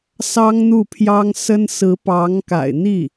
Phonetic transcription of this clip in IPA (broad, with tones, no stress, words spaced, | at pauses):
sɑ˥ŋn̪u˥˩pʰjɑ˥ŋ sə˥n sɹ̩˧˥pɑ˧˥ŋka̰˨˩ɪ̯n̪i˥˩